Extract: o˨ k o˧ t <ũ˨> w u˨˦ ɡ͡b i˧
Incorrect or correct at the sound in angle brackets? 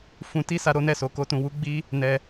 correct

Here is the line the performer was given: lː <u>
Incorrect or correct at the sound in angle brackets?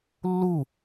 correct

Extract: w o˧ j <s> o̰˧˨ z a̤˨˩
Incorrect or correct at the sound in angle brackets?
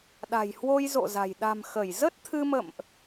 incorrect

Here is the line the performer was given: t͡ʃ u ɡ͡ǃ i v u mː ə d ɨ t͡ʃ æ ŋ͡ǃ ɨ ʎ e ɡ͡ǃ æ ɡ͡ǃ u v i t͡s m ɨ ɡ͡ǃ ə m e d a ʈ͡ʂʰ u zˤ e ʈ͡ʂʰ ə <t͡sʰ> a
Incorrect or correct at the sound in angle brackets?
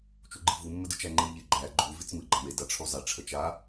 incorrect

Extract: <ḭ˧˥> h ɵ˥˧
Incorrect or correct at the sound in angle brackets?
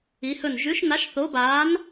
incorrect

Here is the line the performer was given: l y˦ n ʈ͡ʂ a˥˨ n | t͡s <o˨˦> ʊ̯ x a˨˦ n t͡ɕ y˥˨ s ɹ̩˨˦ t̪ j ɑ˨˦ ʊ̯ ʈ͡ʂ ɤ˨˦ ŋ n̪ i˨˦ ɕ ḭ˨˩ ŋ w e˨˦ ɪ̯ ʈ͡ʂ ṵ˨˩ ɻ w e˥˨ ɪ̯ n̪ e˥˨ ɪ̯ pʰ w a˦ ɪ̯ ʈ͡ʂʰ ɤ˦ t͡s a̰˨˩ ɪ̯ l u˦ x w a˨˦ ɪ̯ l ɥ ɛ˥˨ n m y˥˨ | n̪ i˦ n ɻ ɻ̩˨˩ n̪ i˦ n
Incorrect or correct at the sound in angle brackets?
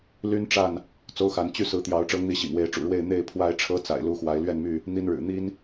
incorrect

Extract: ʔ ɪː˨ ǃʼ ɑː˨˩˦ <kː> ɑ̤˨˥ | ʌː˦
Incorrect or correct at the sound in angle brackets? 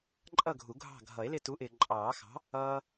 incorrect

